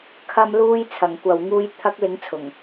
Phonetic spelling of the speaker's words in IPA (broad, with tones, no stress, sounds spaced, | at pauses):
kʰ ɐ˨ m l uː˧ j t͡sʰ ɐ˨˩ ŋ kʷ ɐ˨ w ŋ uː˧ j t̪ʰ ɐ˨˥ k̚ l ɪ˨˥ ŋ t͡sʰ ʊ˨˩ ŋ